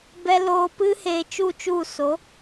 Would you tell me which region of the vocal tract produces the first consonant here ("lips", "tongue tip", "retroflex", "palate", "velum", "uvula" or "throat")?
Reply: lips